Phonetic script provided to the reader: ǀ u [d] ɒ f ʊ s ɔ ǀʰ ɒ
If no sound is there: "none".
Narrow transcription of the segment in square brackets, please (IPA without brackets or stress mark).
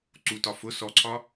t